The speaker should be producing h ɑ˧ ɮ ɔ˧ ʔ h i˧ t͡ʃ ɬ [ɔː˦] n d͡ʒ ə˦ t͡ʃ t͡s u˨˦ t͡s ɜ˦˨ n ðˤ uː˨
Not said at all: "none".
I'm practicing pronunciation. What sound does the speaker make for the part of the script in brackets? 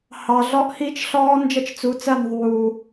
ɔː˦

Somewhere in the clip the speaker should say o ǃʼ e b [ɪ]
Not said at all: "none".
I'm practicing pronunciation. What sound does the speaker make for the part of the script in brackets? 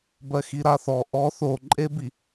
i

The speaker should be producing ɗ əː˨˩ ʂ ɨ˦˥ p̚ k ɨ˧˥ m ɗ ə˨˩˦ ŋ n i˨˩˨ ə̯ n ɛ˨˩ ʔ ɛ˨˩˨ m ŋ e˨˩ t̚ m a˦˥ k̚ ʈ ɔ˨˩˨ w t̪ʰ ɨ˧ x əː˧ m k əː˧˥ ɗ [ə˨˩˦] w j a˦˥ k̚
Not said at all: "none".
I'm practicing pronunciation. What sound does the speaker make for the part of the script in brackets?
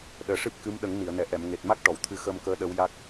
ə˧˥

